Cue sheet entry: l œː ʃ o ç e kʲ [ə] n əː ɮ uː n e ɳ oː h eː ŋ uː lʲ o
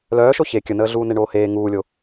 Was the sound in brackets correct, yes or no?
yes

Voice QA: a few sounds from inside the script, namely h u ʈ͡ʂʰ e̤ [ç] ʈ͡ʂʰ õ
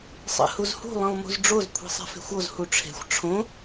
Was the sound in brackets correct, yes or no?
no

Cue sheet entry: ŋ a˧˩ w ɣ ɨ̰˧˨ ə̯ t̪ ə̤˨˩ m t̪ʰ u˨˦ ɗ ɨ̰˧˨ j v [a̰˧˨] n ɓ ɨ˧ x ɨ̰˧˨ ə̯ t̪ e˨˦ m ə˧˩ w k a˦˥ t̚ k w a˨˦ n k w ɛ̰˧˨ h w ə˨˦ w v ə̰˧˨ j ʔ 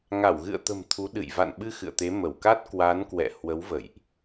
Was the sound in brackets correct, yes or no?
yes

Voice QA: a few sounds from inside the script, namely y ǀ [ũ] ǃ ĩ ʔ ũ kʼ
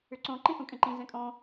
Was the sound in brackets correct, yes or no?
no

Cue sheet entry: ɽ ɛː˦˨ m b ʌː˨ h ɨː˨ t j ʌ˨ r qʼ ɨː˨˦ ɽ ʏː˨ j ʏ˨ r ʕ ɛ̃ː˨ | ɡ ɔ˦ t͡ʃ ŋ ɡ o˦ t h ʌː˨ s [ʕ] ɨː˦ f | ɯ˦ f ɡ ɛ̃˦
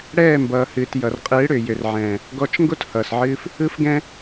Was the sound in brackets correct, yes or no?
yes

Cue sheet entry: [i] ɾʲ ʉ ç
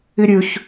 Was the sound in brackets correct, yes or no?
yes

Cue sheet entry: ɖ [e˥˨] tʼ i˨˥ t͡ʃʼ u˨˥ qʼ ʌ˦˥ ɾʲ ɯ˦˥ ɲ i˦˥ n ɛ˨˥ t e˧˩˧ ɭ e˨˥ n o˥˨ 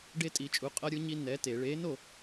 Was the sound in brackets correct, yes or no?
no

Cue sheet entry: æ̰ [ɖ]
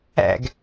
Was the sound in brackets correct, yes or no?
no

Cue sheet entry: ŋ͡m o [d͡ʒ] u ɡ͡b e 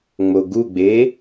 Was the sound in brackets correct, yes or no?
no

